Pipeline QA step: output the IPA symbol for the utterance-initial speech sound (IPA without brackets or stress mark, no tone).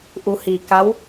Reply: ʔ